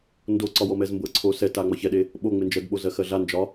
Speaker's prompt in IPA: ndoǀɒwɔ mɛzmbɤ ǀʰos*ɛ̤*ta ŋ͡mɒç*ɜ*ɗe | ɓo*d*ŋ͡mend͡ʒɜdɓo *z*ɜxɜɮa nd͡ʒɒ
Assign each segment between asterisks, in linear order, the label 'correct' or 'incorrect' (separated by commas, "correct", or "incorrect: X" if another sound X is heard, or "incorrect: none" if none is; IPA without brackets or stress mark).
incorrect: ɛ, incorrect: ɛ, incorrect: none, correct